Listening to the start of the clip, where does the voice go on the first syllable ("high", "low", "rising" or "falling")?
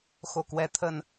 low